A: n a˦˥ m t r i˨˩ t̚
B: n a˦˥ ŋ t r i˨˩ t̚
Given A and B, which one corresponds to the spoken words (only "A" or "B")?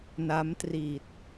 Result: A